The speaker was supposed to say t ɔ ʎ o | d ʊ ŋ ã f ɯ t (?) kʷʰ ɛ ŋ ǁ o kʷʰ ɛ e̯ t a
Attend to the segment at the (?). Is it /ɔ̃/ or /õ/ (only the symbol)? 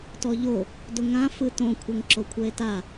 õ